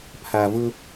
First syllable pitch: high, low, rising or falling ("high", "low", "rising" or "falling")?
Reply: low